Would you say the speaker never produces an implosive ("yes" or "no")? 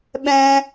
no